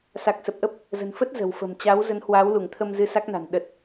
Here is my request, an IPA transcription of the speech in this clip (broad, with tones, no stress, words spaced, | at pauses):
sa˨˩k̚sə˨˩p̚ʔə˦˥p̚ | zə̤˨˩nfə˦˥t̚ zə̤˨˩wfə̤˨˩m t͡ɕa˨˦w zə˨˦nhwaː˨˦wlu˧˩ŋt̪ʰə˧m zɨ˧sa˦˥k̚na̤˨˩n ɗə˨˩t̚